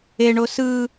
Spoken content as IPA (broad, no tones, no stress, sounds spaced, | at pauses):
e ɳ o s ɯ